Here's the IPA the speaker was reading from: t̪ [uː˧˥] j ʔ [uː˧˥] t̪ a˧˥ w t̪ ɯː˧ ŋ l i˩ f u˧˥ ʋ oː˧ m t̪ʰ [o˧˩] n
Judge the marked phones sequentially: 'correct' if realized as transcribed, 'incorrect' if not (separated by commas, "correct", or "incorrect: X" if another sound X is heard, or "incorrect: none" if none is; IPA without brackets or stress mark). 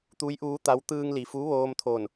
incorrect: u˧˥, correct, correct